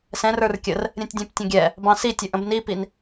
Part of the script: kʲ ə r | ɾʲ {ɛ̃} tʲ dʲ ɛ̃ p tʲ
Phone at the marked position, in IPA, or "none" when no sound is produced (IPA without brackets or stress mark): ɛ̃